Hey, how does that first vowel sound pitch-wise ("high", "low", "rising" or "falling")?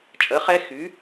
rising